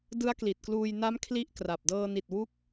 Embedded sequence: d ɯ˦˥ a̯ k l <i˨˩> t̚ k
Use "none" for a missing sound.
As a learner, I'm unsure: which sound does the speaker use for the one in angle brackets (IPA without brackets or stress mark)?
i˨˩